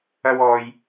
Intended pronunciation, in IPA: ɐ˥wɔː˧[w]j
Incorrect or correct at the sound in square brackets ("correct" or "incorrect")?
incorrect